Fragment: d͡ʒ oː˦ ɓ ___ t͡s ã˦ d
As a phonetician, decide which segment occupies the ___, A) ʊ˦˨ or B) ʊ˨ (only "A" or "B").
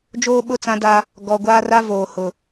A